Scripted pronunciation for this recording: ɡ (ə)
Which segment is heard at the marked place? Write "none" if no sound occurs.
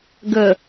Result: ə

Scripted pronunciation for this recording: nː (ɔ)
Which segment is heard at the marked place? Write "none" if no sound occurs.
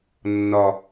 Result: ɔ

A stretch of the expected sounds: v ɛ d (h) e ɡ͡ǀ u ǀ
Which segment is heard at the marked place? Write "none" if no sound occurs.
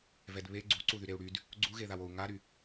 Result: β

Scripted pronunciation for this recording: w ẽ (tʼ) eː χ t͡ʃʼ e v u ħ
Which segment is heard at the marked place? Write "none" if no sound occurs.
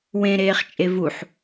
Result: ɾ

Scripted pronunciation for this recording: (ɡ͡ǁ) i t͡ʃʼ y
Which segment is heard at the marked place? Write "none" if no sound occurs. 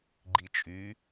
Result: ɡ͡ǃ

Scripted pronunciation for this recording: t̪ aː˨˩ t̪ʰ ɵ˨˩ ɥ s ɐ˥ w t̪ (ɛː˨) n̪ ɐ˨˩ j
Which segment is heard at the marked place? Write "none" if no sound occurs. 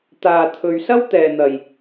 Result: ɛː˨˩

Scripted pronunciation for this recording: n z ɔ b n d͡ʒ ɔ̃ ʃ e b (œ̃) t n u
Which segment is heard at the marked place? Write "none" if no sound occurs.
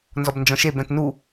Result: œ̃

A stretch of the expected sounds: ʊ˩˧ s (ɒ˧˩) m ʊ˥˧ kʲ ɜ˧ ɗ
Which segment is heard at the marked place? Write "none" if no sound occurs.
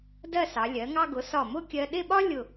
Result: ɒ˧˩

